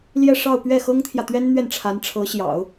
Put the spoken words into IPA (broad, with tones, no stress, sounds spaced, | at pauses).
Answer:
l j ɛ˥˧ ʂ ɑ˥˧ ʊ̯ p ɥ ɛ˥˩ x ɤ˥ ŋ t̪ʰ j ä˨ t̪ ɥ ɛ˥ n n̪ ɥ ɛ˥˩ n ʈ͡ʂʰ a˧˥ n ʈ͡ʂʰ ɤ˧˥ ɕ j ɑ̰˨˩˦ ʊ̯